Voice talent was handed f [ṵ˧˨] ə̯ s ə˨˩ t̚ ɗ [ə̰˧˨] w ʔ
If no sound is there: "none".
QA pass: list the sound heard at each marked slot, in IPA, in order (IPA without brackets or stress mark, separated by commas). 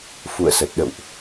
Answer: ṵ˧˨, ə̰˧˨